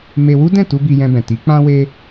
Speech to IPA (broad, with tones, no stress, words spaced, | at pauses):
me˧wu˦dɛ̃˦˨tu˧ bi˧jɛ̃˧bɛ̃˨ ti˨˦k͡pã˦we˦